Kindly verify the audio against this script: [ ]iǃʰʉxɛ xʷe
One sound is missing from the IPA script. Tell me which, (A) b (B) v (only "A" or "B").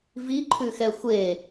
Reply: B